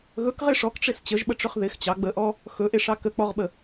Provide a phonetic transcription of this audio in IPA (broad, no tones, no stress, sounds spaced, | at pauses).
ɣ ɵ k ʁ ɪ ʂ ɔ k ʈ͡ʂ ɪ s t͡ɕ ə ʒ ɓ ə ʈ͡ʂ ɵ χ ð ɪ x t͡ɕ ɑ ɡ͡b ə ʔ ɔ | x ɵ ʔ e ʂ ɑ k ə k͡p ɔ ʁ ɓ ə